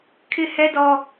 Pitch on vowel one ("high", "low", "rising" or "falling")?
high